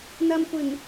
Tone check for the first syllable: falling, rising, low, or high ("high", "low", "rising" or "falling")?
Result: low